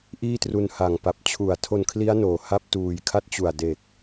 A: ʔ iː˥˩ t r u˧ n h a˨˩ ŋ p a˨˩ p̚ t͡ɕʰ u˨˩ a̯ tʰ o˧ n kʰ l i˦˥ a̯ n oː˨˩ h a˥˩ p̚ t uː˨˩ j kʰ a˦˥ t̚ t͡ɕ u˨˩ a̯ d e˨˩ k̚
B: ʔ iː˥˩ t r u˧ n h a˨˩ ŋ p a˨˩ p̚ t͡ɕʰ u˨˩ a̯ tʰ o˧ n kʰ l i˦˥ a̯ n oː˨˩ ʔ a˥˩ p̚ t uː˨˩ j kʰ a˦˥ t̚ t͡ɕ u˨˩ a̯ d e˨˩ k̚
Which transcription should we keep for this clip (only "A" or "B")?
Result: A